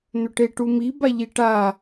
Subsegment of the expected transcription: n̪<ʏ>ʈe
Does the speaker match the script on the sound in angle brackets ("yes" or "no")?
yes